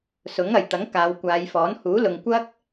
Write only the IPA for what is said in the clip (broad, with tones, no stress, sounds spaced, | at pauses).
s ʊ˨˥ ŋ ɐ˨˩ j t̪ ɐ˨˥ ŋ k aː˨˧ w kʷ aː˨˧ j f ɔː˨˥ n h uː˨˥ l ʊ˨ ŋ kʷ ɐ˥ k̚